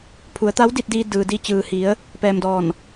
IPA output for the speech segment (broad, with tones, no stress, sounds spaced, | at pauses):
pʰ u˩˧ ə̯ t̪ a˧˥ w d i˧ t̚ d iː˧ d ɯː˩ d i˧ t͡ɕ ɯː˩ h i˩˧ ə̯ | p ɛː˧ m d ɔː˧˩ n